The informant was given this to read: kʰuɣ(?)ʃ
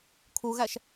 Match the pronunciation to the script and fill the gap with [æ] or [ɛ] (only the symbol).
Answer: æ